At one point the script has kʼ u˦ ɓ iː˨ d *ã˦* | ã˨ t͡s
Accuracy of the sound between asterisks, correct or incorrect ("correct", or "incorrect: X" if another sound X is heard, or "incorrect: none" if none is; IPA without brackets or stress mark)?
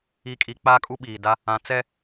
incorrect: a˦